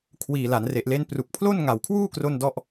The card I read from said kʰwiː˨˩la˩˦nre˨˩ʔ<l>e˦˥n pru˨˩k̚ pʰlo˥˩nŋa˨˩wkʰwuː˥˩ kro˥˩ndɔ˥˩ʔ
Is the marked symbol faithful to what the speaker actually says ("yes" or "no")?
yes